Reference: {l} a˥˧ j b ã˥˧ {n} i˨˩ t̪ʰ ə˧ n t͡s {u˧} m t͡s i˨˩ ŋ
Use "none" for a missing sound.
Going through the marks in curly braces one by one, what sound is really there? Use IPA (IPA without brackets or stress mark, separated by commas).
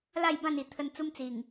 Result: l, n, u˦